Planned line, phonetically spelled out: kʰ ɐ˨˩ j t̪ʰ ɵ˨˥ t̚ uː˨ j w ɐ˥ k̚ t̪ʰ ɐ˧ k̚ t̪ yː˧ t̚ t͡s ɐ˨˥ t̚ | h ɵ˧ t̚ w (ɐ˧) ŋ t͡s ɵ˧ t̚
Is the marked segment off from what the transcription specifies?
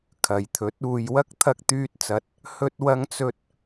no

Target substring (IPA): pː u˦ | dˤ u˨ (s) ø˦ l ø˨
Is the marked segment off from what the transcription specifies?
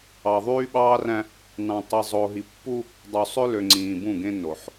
yes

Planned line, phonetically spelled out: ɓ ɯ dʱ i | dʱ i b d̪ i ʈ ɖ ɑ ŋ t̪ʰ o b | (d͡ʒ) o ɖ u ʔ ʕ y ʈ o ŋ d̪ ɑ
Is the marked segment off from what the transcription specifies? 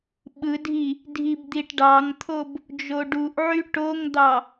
no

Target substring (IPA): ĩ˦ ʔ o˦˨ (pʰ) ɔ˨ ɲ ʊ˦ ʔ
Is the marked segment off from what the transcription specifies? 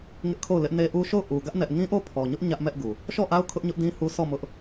no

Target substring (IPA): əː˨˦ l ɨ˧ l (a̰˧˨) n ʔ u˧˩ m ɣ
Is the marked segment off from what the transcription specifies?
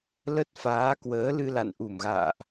no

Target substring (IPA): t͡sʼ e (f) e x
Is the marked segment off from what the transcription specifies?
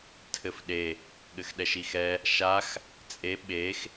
yes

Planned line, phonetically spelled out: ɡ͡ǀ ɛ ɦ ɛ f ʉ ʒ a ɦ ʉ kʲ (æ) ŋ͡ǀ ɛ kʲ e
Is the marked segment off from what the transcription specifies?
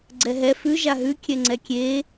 yes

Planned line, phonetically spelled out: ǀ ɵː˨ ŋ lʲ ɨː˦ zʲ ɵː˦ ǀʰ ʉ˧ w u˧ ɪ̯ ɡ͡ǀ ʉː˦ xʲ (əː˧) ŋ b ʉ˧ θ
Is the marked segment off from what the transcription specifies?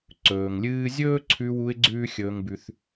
yes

